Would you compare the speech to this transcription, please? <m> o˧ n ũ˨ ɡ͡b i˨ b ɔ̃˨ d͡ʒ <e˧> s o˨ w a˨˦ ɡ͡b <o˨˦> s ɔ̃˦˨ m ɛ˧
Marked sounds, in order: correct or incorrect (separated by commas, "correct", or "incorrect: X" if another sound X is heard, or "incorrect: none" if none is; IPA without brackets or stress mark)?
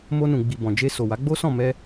correct, correct, incorrect: o˦